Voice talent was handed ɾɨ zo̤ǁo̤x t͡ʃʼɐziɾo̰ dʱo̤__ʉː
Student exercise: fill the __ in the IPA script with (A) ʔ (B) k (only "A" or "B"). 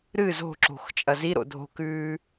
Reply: B